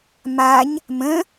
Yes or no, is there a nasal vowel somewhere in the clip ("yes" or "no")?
yes